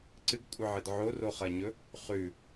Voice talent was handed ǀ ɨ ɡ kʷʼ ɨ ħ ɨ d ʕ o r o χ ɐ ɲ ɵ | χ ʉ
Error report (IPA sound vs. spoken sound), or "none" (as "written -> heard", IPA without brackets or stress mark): ħ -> ʕ